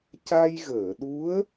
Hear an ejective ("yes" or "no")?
no